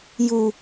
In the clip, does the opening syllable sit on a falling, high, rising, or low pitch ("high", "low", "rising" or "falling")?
low